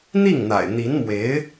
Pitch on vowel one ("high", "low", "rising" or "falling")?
falling